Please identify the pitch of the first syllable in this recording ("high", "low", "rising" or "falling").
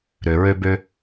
low